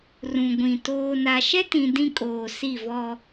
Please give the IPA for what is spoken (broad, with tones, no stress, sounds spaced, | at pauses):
r ũ˨ ɡʷ ĩ˨ t oː˨ n a˨ ʃ ɛ˦ t ĩ˨ d ĩ˦ kʼ oː˨ s i˦˨ v ɔ˦